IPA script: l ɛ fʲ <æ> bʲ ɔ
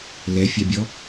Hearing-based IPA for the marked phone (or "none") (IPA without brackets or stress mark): a